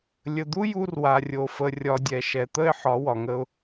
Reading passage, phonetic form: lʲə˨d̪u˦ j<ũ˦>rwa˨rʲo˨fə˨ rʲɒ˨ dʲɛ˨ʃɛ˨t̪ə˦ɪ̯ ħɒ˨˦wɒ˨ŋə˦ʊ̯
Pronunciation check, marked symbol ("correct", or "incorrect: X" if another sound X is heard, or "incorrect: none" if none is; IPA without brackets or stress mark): incorrect: u˦